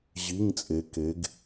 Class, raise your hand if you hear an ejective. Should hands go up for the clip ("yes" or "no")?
yes